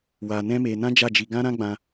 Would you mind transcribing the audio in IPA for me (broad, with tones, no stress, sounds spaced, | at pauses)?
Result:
w a˧ n ɛ̃˦ m e˧ n ã˦ d͡ʒ a˦˨ d͡ʒ i˧ ɡ ã˦ ɾ ã˦ ɡ͡b ã˧